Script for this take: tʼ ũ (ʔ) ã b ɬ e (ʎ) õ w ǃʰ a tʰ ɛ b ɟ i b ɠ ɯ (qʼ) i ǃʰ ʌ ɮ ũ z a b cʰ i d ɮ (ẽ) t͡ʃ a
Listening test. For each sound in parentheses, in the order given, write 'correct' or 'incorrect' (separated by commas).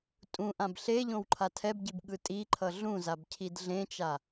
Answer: correct, correct, incorrect, correct